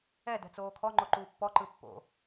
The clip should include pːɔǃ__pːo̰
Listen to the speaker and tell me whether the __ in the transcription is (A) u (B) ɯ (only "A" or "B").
B